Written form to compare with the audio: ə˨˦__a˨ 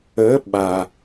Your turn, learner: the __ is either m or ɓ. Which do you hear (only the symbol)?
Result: ɓ